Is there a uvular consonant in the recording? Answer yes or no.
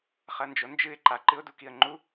yes